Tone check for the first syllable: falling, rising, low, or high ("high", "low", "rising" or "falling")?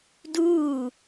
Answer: falling